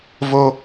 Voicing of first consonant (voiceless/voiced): voiced